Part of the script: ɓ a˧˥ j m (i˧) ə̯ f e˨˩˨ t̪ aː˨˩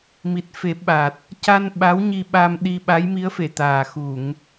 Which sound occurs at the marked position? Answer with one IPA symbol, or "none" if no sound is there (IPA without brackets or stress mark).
i˧˥